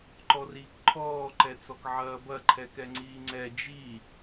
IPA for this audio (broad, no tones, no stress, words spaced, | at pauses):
ǃɔriːkǃʰɔː ǃɛt͡sɔkʕɐːbɐ ǃʰɛkɛŋ͡ǀiːŋ͡ǀɛ d͡ʒi